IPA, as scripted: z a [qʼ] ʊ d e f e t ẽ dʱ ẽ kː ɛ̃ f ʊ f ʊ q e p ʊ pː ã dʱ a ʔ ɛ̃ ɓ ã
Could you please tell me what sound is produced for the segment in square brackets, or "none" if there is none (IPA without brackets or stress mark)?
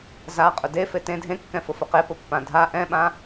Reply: qʼ